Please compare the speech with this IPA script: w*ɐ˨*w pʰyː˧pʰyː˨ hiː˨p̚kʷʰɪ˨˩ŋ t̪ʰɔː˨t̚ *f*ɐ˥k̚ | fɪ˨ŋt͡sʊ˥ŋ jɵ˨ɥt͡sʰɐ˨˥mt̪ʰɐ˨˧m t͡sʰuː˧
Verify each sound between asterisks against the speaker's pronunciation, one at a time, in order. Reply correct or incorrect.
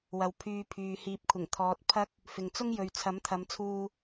correct, incorrect: pʰ

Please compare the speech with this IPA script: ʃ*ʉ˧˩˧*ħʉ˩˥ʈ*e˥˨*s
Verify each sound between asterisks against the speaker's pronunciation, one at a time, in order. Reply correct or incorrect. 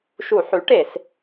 incorrect: u˧˩˧, incorrect: e˧˩˧

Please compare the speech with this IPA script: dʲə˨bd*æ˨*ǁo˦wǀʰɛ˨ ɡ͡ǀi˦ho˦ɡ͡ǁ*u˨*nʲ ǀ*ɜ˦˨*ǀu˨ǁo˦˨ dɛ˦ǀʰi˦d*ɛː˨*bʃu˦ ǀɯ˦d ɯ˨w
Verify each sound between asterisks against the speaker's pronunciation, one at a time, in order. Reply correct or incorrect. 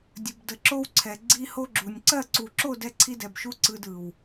incorrect: ə˨, correct, correct, incorrect: ɛ˨

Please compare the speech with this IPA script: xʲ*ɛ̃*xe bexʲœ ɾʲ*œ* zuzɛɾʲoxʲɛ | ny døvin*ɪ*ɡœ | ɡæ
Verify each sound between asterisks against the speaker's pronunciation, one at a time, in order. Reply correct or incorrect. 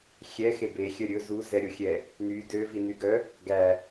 incorrect: ɛ, incorrect: ɵ, incorrect: y

